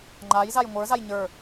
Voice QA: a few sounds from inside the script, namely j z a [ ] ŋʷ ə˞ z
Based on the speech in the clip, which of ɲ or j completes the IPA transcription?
j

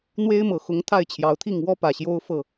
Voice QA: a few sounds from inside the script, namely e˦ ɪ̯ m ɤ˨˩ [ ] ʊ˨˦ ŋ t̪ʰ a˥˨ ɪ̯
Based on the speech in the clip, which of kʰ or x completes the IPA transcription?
x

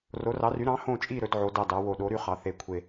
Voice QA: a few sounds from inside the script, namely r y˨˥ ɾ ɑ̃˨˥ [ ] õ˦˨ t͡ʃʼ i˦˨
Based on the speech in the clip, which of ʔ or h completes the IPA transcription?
h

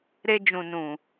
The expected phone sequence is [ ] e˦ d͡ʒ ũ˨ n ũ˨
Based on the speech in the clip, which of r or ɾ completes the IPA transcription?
ɾ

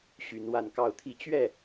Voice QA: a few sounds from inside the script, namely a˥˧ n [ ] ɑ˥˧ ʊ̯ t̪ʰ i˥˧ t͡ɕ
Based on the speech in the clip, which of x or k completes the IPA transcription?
k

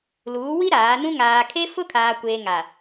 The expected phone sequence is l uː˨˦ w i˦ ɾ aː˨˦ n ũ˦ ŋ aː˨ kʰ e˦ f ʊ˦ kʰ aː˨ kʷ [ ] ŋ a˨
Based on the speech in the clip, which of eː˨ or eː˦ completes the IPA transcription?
eː˨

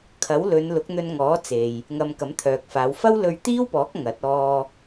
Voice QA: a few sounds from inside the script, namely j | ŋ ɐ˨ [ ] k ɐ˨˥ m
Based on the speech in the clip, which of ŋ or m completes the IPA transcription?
m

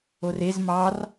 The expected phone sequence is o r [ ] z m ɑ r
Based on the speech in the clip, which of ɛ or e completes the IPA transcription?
e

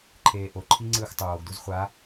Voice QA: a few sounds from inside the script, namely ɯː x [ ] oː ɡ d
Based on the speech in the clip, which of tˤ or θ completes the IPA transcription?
tˤ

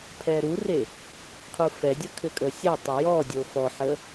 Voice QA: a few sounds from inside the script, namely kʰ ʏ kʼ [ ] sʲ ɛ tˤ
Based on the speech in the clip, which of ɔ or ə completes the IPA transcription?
ə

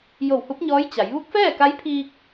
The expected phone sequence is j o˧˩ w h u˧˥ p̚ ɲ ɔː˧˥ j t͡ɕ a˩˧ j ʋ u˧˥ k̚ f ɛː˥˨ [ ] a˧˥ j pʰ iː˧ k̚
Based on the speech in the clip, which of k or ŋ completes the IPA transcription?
k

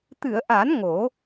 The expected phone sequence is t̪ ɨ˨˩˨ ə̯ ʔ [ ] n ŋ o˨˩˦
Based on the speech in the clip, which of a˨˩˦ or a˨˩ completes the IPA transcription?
a˨˩˦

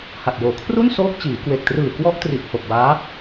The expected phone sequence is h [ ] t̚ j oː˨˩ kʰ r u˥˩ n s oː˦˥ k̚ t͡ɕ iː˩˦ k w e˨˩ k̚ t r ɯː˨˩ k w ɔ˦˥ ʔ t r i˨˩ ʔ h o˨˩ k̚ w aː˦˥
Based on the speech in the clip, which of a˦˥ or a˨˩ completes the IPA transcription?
a˨˩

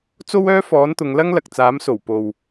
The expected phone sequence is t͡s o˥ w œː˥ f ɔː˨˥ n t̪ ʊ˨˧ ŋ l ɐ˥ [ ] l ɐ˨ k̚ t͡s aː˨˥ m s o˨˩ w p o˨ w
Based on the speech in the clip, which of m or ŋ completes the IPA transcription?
ŋ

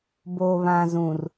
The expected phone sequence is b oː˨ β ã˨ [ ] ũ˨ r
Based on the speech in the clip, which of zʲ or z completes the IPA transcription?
z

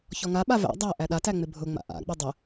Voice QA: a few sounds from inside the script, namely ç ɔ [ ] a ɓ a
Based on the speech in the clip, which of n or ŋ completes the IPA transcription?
ŋ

